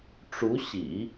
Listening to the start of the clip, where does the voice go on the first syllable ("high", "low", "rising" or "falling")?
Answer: rising